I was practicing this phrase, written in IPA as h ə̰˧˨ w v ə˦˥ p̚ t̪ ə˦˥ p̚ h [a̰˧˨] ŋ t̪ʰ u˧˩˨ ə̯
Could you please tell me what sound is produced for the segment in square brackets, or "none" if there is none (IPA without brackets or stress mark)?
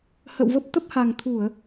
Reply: a˨˩